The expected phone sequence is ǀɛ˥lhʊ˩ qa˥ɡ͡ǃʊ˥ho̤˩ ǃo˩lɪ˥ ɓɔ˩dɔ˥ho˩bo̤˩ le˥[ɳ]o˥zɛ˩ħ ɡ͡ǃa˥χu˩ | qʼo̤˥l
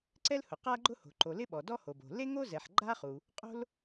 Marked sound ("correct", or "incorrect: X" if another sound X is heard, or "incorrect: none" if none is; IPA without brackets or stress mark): incorrect: ŋ